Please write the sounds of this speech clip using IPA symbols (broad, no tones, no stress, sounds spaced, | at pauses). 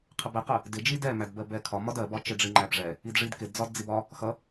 qʰ ə b ɛ q ɜ | d ɪ d͡ʒ i d ɛ m æ d b ɜ b ɛ kʰ ɒ m ɒ d ɜ b ɒ t͡ʃ ɪ ɖ͡ʐ i ŋ͡ǃ æ b ʐ ɛ | i d ʐ i d k ɪ d d͡z ɒ d d͡z i b ɒ | x ʌ